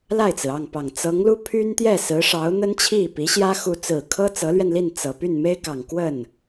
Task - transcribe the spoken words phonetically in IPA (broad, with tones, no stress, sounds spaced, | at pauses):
l a˥˩ ɪ̯ t͡s ɹ̩˩ ɑ˥˩ ŋ p ɑ˨˩ ŋ t͡s ɤ˧˥ ŋ l u˥ pʰ y˥ n t̪ j ɛ˥˩ s ɹ̩˧˥ ʂ ɑ˧˥ ʊ̯ n̪ ə˥ n t͡ɕʰ i˥˩ p i˧˥ ɕ j ä˥ x u˥ t͡s ɹ̩˨˩ kʰ ɤ˥ t͡s ɤ˧˥ l ɥ ɛ˧ n l i˥˩ n t͡s ɤ˨˩ p y˥˩ n m e˥ ɪ̯ k ɑ˨˩ ŋ k w ə˥˩ n